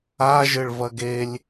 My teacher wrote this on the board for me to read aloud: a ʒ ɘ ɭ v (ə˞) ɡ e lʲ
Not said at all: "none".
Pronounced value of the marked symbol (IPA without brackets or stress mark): ɐ